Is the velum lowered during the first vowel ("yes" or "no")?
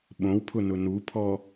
yes